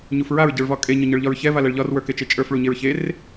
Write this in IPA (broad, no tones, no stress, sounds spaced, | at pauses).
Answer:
ɲ u f ɹ a ɹ ɟ ə˞ ɭ v ɒ kʼ e ɲ ɒ ɲ ə˞ ɭ ʎ ɒ ɹ ç ɛ v a l ɛ ɭ ʎ ɒ r w ə˞ k e t͡ʃ e t͡ʃʼ ə˞ f ɭ u ɲ e ɹ ç e r